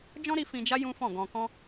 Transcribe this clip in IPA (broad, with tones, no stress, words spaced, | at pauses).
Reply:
d͡ʒɔ̃˦ɾi˧ fĩ˧d͡ʒa˦ jũ˦fɔ̃˦˨ɡɔ̃˧kɔ̃˦